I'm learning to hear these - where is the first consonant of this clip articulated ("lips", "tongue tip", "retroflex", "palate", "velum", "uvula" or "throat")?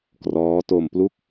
velum